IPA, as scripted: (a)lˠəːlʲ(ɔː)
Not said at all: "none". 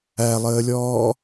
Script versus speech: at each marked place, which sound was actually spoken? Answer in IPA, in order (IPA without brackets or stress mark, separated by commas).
æ, ɔː